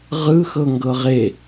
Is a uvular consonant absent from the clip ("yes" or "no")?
no